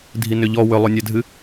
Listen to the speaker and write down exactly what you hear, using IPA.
dʱ i n ʏ ʎ ɔ w ʏ lˠ o nʲ æ dʱ ɨ

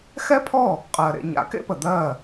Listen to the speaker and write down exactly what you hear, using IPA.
x ɛ˥ pʰ ɔ˥˩ | qʼ ɜ˩ ɾ ḛ˧ ɲ a̰˩˥ k ḛ˥ p ə˩ d̪ ɜ˥˩

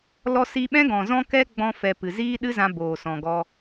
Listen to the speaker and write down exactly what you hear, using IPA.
l ɔ˧ s i˧ ɓ ɛ̃˦ ɡ ɔ̃˨ z ɔ̃˦ k ɛ˦ ɡ͡b ɔ̃˧ f ɛ˨ p ɨ˨ z iː˦ ɗ ɨ˦ z ã˧ b oː˨ s ɔ̃˨ ɡ ɔ˧

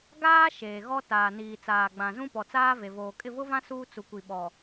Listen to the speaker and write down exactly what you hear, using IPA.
ɡ aː˦ ʃ eː˨ ɣ ɔ˦ t aː˨ n iː˨ t͡s aː˨ ɡ͡b ã˨ z ũ˦ p ɔ˨ t͡s aː˦ v e˨ v oː˨ kʼ ɪ˦˨ v ʊ˦ v ã˦ s uː˦ t͡s u˨ kʷ i˨ ɓ ɔ˨

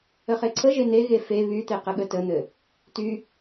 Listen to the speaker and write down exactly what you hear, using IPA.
ə χ e ǀʰ ə ʒ e n̪ e ɣ e f e β y t̪ e q ə ɠ ə t ə n̪ ɘ | t y

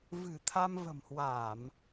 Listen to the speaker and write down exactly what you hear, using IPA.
v ɨ̤˨˩ t̪ʰ a˧ m v ə̤˨˩ m h w a˧˩˨ m

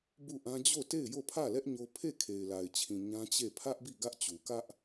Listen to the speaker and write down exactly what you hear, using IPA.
b u˦˨ ʔ ã˦ d͡ʑ o˦˨ t e˦˨ ɪ̯ j o˦˨ pʰ ä˦˨ l ɛ˦ ʔ ɲ o˦ pʰ e˦˨ kʰ e˨ ɪ̯ l a˨ ɪ̯ t͡ɕʰ ĩ˨ ɲ ã˦ t͡ɕ e˦˨ pʰ ä˦ ʔ b i˦˨ ɡ ä˦ ʔ t͡ɕ u˨ k ä˦ ʔ

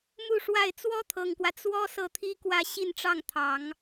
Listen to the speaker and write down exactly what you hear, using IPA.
m u˥˧ ʂ w a˥˩ ɪ̯ t͡s w ɔ˥ t̪ʰ ɤ˨˩ ŋ k w ä˦ t͡s w ɔ˥ s ɤ˥˩ t̪ʰ i˥ k w ä˥˧ ɕ i˥˧ n ʈ͡ʂ ɑ˥˩ ŋ t̪ʰ ɑ˨˩˦ ŋ

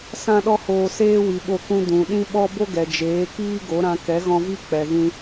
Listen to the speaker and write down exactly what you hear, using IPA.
s ã˦ ɗ ɔ˦ h oː˧ s eː˦ w i˨ ɓ o˧ k ũ˧ d ũ˨ ɗ ĩ˦ ɓ ɔ˦ b o˦ ɡ ɛ˨ d͡ʒ eː˨˦ k iː˦ ɡ o˨˦ ɾ ã˧ k ɛ˨˦ ɣ ɔ̃˧ v i˦ k͡p ɛ˨ ɣ ĩ˧

